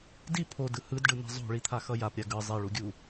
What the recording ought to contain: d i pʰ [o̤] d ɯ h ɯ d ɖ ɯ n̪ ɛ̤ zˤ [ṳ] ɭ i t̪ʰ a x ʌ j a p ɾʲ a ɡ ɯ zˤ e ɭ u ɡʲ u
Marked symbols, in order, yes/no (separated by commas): no, no